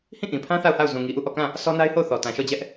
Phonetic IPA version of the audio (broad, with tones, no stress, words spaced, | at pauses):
hĩ˦˨ʔĩ˨pʰã˦ θa˦˨ʊ̯ha˦˨ʊ̯ zũ˨ŋi˨ʔu˦˨ ʔɔ˦˨kã˦˨ | sʰɔ˦na˦ɪ̯ho˦˨ʊ̯ θɔ˨tã˨ʃɔ˦˨d͡ʑɛ˦ʔ